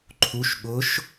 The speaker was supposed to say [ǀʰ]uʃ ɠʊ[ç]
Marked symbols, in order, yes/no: no, no

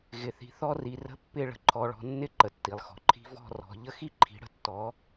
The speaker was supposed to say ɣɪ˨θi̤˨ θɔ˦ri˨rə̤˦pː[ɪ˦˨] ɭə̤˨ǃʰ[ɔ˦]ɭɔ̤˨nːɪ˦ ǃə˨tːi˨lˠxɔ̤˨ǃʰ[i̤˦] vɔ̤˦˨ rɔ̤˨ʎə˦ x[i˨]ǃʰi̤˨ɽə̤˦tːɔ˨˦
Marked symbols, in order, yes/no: yes, no, yes, no

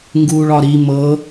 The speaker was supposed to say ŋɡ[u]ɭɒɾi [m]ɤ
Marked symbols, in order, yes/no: no, yes

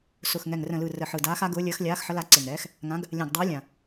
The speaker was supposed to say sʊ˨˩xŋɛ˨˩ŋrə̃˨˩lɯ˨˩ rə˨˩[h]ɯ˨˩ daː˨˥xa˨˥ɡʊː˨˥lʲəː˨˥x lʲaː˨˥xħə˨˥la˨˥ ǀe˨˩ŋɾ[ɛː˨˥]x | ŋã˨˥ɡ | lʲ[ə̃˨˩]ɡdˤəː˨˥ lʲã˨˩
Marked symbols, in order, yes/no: no, yes, no

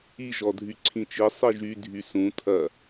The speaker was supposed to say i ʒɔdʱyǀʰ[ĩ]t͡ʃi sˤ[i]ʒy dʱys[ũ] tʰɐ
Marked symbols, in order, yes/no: yes, yes, yes

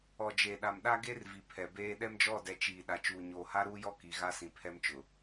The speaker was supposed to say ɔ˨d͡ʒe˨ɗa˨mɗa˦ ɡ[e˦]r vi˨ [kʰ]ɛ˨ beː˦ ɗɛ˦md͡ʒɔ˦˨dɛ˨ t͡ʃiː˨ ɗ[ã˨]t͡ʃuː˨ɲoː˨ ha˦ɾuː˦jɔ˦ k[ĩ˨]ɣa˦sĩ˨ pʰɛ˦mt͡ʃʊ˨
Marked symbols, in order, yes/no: yes, no, no, no

